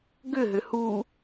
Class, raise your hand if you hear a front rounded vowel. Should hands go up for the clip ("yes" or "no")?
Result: yes